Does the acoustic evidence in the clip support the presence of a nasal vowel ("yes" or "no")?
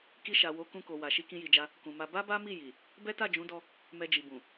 yes